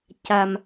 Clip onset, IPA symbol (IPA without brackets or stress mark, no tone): c